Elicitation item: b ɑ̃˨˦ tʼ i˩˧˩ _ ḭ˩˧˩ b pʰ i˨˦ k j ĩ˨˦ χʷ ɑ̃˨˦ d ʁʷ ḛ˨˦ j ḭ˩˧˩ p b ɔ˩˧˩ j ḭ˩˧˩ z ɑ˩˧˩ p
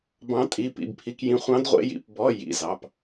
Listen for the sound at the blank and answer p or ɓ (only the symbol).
p